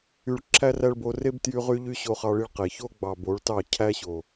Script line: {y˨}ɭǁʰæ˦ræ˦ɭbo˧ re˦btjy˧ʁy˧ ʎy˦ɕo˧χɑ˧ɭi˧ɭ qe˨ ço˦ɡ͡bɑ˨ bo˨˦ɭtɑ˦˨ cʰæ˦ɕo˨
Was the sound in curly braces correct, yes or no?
no